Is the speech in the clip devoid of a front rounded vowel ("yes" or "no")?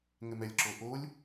yes